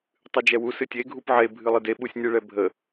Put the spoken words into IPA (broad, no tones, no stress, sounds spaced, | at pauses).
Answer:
tˤ ɨ d͡ʒ ɛ w u s ɨ tʲ e ɡʱ u p ʕ e bʱ ɨ lˠ ɨ d e ɓ u sʲ nʲ ɨ ɭ ɛ bʱ ə